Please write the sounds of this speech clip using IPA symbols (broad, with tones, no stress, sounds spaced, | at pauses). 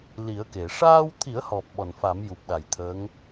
l i˨˩˦ ə̯ k e˨˩˨ ʂ aː˧ w t̪ʰ i˨˩˦ ə̯ h ɔ˨˩ p̚ ɓ ɔ˨˩ n f a˨˩˦ m j u˨˩ p̚ ɗ a˨˩ j t̪ʰ əː˧˥ ŋ